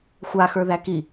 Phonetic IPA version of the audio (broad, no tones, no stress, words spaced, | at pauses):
xʷaxə˞ðæ ki